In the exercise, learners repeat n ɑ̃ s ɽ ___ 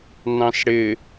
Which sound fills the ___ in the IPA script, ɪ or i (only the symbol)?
ɪ